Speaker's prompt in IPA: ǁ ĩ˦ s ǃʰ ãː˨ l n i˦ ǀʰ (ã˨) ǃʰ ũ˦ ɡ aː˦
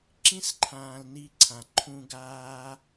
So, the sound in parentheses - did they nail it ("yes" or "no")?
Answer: yes